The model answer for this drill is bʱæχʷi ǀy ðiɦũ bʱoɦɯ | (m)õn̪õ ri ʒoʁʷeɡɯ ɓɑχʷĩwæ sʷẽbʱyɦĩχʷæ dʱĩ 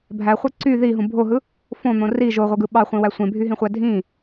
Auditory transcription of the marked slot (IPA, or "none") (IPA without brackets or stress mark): f